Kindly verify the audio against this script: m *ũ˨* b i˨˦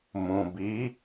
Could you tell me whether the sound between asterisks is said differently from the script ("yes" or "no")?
no